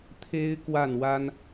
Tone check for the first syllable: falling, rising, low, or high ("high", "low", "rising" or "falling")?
high